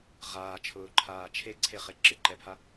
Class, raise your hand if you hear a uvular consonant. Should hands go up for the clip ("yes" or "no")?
yes